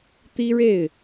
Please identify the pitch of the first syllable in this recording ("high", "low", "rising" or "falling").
high